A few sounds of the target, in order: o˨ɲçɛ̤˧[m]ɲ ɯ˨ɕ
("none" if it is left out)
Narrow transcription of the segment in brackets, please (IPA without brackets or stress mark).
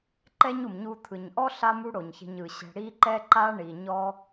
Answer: none